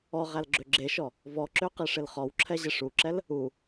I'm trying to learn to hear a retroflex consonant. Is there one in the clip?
yes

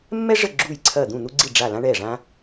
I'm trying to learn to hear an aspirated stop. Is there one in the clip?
yes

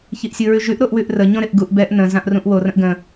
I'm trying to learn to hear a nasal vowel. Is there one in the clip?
yes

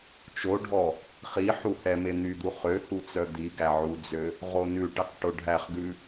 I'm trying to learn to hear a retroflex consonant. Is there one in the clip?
yes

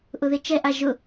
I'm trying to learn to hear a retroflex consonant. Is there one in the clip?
no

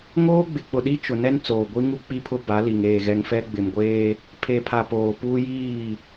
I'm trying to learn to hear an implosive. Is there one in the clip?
yes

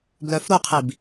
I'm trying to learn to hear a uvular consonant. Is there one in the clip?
yes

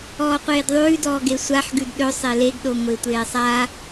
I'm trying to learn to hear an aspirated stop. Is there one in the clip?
no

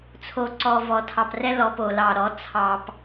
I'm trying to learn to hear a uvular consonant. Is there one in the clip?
no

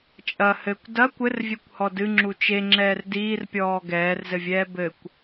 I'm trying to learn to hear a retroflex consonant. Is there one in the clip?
no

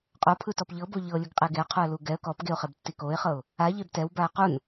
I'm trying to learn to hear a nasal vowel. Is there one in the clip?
no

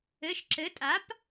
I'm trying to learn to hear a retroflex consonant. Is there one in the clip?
no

